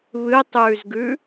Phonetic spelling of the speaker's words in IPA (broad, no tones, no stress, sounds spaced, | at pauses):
β ɨ tˤ ʉː z ɡ ʉ